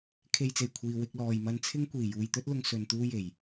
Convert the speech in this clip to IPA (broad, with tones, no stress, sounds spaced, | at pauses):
kʰ e˧ j t͡s e˨˩ j kʷʰ iː˨ w ɪ˧ k̚ l ɔː˨ j m ɐ˧ n t͡sʰ ɪ˥ ŋ kʷ iː˨˩ j uː˨ j t̪ ɵ˥ t̚ l ʊ˧ ŋ s ɵ˧ n t̪ uː˥ j e˨˩ j